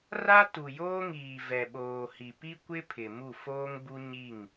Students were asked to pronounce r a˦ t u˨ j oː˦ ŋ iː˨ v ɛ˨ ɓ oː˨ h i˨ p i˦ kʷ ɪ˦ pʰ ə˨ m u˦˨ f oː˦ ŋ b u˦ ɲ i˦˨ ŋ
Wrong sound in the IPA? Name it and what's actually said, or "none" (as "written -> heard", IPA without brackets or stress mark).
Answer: ə˨ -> ɪ˨